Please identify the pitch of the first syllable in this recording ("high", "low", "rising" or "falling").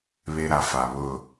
low